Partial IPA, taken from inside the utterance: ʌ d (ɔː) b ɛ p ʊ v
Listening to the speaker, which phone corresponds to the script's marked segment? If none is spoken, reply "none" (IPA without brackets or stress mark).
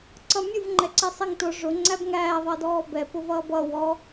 ɔː